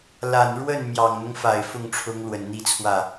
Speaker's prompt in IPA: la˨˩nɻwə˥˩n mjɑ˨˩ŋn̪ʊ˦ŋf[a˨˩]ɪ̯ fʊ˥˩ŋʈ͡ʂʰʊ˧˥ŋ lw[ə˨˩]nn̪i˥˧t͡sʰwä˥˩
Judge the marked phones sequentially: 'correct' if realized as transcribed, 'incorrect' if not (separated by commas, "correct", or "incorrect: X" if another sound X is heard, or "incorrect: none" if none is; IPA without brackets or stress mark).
correct, correct